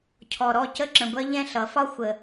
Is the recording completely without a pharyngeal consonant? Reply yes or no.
yes